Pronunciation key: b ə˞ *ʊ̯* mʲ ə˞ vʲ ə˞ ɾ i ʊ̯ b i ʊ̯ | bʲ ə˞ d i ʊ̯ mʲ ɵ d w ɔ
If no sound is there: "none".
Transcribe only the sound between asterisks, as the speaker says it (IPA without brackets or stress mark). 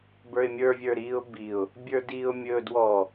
ɪ̯